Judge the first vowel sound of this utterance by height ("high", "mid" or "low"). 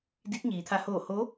high